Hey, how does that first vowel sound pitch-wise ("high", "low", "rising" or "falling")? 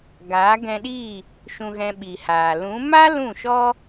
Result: rising